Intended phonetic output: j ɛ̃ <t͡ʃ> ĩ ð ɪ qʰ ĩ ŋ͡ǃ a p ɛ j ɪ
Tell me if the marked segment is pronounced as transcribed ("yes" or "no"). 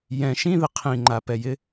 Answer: no